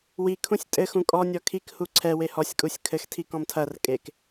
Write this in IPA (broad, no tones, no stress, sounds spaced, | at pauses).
w i kʰ ũ sʲ tʼ ɘ x ũ kʼ ɔ nʲ ɔ kʰ i k h u ǀʰ ɛ w e h ɔ sʲ kʼ u sʲ kʰ ɘ x tʰ i k ɔ̃ m tʰ ɐ r kʼ e k